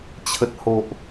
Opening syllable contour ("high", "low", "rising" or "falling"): low